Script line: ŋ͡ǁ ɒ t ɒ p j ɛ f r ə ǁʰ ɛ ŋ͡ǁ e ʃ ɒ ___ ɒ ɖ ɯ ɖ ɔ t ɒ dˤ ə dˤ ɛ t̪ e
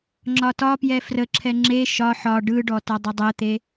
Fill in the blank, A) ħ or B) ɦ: A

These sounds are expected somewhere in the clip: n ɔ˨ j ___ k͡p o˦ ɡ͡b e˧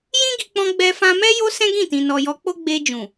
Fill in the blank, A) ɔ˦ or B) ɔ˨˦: B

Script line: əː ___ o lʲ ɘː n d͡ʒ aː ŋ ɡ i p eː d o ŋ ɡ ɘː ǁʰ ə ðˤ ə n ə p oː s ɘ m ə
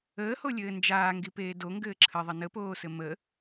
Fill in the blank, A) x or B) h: B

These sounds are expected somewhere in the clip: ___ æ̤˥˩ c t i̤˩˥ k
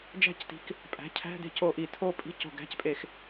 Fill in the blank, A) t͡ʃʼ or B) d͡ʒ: B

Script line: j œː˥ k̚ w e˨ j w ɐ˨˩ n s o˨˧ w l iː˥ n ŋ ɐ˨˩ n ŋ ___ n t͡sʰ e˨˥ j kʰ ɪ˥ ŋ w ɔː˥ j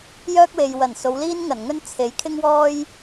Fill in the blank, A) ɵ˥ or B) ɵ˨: A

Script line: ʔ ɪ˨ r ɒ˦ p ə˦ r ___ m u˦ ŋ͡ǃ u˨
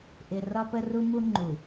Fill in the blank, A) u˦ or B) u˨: A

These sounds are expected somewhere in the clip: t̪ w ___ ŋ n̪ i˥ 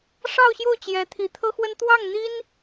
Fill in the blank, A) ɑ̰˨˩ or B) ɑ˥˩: B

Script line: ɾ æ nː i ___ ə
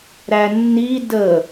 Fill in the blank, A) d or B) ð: A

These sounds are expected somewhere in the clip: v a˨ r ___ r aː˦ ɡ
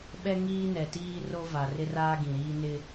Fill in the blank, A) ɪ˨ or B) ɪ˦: B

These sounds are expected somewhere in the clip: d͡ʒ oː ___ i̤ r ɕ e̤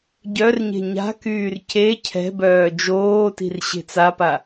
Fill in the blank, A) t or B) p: A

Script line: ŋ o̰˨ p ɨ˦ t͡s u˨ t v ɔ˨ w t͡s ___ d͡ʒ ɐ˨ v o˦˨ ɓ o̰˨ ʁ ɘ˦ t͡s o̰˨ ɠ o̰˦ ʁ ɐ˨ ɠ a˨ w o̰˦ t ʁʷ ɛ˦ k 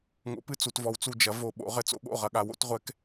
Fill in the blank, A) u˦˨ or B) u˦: A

